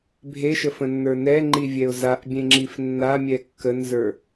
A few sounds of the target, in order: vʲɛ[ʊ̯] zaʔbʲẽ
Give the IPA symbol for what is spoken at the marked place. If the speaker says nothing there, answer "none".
ʊ̯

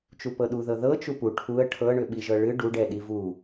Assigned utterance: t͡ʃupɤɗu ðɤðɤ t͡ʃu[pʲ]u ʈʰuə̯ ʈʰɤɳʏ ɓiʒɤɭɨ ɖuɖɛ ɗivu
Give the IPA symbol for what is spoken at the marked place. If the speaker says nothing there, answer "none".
p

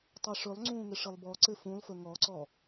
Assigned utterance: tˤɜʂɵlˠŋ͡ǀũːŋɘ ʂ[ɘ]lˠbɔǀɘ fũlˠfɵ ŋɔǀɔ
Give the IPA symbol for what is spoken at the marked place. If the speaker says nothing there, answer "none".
ɘ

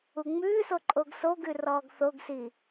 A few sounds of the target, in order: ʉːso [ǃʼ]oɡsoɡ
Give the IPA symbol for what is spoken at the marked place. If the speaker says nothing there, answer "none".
ǃʼ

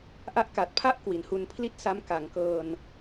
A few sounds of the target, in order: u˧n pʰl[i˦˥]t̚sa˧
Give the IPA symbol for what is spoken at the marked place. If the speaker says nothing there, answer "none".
i˥˩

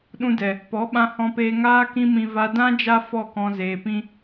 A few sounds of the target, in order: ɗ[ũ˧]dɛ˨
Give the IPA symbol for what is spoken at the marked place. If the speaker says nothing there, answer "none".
ũ˧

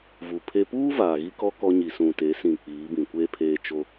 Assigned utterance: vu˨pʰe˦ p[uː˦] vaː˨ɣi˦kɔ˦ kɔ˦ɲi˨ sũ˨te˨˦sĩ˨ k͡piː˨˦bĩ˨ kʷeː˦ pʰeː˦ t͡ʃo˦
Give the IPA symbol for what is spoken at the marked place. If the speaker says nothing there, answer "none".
uː˦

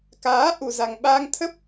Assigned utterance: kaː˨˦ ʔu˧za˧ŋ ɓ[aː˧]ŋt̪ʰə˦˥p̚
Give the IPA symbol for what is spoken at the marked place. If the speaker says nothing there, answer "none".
aː˧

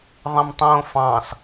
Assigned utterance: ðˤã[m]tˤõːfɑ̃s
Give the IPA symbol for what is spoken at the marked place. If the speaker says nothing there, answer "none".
m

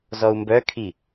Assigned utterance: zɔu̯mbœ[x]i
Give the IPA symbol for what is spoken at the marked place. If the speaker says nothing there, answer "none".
kʰ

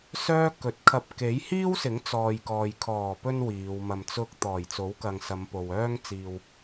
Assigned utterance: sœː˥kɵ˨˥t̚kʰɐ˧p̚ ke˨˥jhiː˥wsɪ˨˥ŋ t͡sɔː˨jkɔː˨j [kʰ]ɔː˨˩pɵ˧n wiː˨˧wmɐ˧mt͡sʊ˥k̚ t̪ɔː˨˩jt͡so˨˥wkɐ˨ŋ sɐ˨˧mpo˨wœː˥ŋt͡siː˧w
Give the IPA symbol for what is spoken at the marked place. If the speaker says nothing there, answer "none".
kʰ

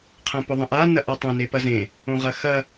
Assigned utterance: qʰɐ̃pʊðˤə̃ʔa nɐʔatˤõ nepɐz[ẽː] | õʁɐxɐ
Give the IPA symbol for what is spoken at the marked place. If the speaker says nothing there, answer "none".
ẽ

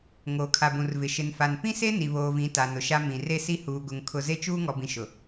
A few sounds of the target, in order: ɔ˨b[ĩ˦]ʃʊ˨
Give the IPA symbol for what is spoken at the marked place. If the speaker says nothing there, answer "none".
ĩ˨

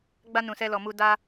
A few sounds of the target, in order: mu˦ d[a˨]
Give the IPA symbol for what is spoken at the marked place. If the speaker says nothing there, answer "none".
a˦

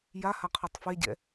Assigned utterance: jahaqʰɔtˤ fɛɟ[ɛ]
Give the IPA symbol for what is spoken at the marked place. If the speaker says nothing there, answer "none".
ɛ̰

